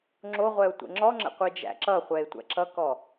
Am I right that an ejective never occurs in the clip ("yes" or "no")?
yes